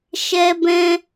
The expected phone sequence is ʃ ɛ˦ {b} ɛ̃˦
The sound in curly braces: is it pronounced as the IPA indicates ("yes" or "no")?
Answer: yes